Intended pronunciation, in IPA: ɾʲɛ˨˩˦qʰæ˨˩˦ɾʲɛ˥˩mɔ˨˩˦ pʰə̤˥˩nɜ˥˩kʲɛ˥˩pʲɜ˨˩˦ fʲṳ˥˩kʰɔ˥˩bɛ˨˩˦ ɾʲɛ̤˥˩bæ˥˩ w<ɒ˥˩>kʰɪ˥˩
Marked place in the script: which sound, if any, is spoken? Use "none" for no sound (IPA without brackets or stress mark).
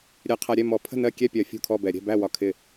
ɒ˥˩